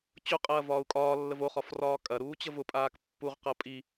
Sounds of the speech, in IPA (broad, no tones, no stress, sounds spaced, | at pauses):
t͡ɕ ʊ qʼ ɐː v ɒː u̯ kʼ ɒː lː ə v o χ ɒ f r ɒː kʼ ɐ ɾ uː t͡ɕ ə v ʊ pʼ aː k pː u ʁ q ɐ pʼ i